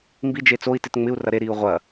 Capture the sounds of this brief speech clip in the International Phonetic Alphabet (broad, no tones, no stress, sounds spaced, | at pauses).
m b i d͡ʒ e t͡s o i̯ t ɪ t ŋ͡m ɪ u̯ r ɐ ɾ e ɾ iː u̯ ʁʷ ɐ